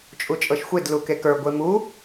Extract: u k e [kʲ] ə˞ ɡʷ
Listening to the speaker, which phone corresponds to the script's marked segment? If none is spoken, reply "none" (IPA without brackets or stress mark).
k